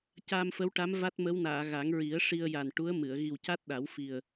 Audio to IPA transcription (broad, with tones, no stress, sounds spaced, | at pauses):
c aː˧ m f ə˧˥ w ʈ a˧˥ m v a˦˥ t̚ m ə˧˥ w n aː˨˩˨ ɣ a˨˩˦ ŋ ɹ i˨˩˦ ə̯ ʂ i˧ ə̯ j a˨˩ n ʈ u˧˥ ə̯ m ɨ˨˩˨ ə̯ ɣ i˨˩ w c a˦˥ t̚ ɗ a˨˩˦ w f i˨˩ ə̯